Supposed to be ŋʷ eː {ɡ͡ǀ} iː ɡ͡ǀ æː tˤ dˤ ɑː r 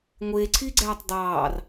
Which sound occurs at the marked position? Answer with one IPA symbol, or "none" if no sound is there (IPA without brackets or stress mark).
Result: ǀʰ